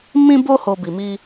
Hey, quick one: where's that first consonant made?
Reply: lips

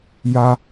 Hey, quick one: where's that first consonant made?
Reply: palate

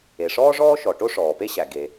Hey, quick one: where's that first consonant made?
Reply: retroflex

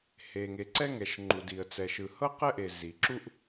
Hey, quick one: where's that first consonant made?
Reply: throat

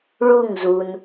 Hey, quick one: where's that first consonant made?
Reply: retroflex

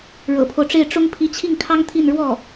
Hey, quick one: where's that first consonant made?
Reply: retroflex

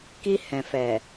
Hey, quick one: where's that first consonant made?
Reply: velum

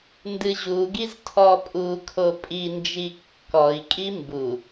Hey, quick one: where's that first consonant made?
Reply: tongue tip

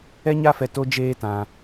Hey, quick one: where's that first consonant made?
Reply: palate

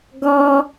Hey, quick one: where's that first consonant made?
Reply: velum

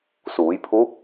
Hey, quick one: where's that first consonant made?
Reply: tongue tip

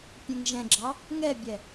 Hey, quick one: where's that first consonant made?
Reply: lips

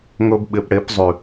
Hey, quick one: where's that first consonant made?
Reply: velum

